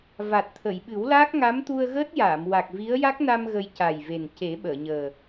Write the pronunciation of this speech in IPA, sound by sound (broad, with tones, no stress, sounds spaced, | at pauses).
v a˨˩ t̚ t̪ʰ ə˨˩˨ j ɓ ɨ˨˩˦ w l aː˦˥ k̚ ŋ a˧˥ m t̪ u˧ ə̯ ɣ əː˦˥ t̚ j aː˨˩˨ m w a˨˩ k̚ v i˧˥ ə̯ j a˦˥ k̚ n a˧ m ɣ ə˧ j c a˨˩ j v e˨˩ n c e˨˩˦ ɓ əː˨˩˨ ɲ əː˨˩